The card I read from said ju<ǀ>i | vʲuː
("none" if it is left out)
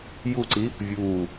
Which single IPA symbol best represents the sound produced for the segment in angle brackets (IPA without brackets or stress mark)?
ǀ